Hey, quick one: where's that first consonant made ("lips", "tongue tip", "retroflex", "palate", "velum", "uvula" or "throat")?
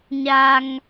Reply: palate